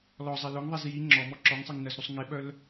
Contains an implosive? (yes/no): yes